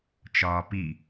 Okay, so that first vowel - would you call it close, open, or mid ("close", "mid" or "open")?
open